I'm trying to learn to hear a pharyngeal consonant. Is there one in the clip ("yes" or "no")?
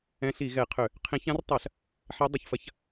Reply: yes